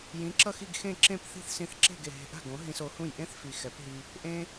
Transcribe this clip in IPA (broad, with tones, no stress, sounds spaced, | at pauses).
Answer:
j ĩ˩˥ ǁ ʌ˥˩ x i˥˩ ɡ x ẽ˥˩ ǁ ẽ˥˩ p θ i̤˥˩ θ s ĩ˧ θ ǁ e̤˥˩ ɡ e˩ ɦ e̤˧ ʔ a̤˥˩ ɡ õ˩˥ ɦ ĩ˧ s o˩˥ h ũ˥˩ j ʔ ẽ˥ θ f i˩ x ɛ˩˥ p ɦ i˧ | ʔ ẽ˧